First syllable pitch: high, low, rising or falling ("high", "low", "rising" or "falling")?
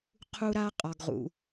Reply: high